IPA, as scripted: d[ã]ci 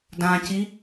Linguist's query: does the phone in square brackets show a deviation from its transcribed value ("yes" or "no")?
no